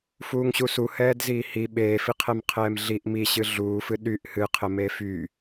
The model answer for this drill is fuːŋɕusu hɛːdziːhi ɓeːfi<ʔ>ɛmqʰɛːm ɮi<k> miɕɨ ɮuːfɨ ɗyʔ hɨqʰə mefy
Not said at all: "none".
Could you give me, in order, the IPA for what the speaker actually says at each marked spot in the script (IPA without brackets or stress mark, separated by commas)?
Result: qʰ, ʔ